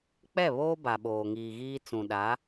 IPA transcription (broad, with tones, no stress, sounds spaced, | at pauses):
k͡p ɛ˦˨ β oː˦ b a˨ ɓ oː˨ ŋ iː˨ ɣ iː˦ t͡s ũ˨ ɗ a˨˦